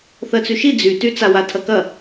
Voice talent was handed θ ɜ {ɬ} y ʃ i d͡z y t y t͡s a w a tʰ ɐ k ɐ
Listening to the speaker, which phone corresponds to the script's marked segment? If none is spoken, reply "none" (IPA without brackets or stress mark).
t͡s